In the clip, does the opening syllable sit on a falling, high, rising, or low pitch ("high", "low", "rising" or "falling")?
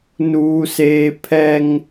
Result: high